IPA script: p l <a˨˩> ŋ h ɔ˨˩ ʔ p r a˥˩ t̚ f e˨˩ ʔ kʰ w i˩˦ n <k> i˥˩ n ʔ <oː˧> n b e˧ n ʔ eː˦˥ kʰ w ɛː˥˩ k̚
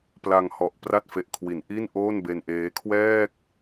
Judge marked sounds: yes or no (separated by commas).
no, no, no